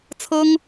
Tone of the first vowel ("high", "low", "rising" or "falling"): high